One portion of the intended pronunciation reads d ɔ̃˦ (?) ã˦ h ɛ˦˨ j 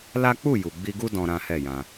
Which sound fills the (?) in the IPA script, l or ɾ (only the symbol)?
ɾ